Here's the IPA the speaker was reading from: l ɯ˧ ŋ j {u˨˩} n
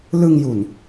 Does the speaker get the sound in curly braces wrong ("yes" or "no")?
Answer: no